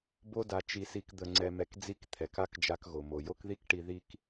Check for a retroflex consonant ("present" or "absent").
present